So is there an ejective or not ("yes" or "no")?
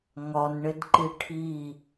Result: no